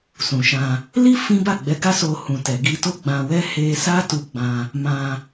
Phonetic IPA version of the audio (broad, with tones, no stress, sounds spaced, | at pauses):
s ũ˨ ʃ ã˧ | l i˦ f ĩ˦ b a˦˨ ɡ͡b ɛ˨˦ ɡ a˦ s o˧ h ũ˨ t ɛ˨ ɡ i˧ t o˦ ɡ͡b ã˧ w ɛ˦ h e˧ s a˦ t u˧ ɡ͡b ã˧ | m ã˧